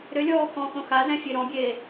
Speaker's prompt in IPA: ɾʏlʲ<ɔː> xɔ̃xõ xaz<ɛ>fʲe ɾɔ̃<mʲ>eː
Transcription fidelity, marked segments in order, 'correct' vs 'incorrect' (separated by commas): correct, incorrect, incorrect